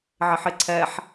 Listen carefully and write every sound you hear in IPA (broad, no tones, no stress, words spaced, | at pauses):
ʕɪħɪǀʰɛħ